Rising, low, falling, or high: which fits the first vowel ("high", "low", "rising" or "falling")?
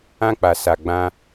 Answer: high